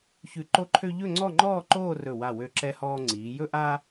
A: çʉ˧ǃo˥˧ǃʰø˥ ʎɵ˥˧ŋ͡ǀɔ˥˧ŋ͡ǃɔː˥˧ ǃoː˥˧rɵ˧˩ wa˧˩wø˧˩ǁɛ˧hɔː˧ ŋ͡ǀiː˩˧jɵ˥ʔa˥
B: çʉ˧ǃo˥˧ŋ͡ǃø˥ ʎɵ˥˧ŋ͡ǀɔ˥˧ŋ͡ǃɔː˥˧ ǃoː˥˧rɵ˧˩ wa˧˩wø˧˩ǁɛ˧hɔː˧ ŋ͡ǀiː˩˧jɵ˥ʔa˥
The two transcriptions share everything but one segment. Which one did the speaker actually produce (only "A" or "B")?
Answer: A